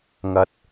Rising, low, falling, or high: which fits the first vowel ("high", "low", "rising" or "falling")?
low